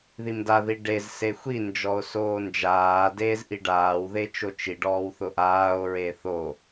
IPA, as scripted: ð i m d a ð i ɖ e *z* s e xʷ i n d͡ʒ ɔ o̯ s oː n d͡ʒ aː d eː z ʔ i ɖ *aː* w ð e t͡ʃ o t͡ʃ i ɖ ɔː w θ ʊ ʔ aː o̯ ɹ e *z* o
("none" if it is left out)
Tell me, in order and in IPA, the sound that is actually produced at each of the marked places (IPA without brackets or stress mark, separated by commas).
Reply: z, aː, θ